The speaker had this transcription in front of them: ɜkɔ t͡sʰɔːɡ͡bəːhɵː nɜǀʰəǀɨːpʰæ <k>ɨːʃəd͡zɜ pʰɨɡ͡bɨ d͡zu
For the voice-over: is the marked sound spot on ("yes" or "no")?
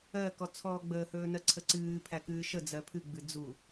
yes